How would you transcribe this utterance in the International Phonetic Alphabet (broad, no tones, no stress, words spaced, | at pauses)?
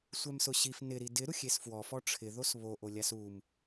sʷɛmsʊɕif nɪɾi dɪ ɾuxʲesfwɔfɔ ʈ͡ʂʰɪ ðosβoʔolʲas um